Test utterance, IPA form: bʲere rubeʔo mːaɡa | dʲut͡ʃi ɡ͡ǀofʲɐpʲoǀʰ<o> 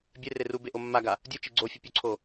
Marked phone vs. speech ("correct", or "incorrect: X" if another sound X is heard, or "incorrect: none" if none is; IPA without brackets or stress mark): correct